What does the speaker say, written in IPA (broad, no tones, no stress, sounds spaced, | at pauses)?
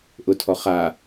ʔ ʊ tʰ ɔ χ a